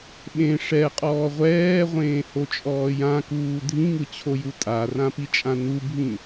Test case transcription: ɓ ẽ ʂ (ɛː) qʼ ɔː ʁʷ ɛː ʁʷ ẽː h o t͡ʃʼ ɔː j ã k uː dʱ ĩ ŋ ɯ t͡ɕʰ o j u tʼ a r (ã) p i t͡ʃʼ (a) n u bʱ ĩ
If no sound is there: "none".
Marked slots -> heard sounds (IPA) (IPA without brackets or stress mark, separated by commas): ɛ, ã, ã